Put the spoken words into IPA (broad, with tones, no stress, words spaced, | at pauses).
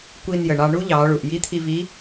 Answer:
kʷi˧njə˩ ɳɑ˧ɳu˥ ʎɑ˩˧ɭu˩ʔji˧˥ t̪ʰi˧vi˧˥